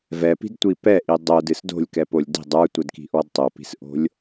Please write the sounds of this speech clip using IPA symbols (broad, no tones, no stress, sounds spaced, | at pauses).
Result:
v ɛ p i̤ d tʷ i p ɛ ʔ i dˤ o d ɨ s d o̤ lʲ k ɛ p o lʲ d i̤ dˤ ə˞ tʷ ɛ d k i̤ ʔ ɔ d tˤ o p i̤ s ʔ o̤ lʲ